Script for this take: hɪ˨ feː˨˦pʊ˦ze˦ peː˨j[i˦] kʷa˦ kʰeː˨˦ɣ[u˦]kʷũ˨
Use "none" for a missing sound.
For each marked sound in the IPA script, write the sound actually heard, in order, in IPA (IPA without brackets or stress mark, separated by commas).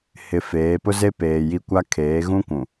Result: i˦, ũ˦